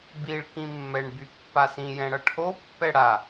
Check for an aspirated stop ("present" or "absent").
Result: present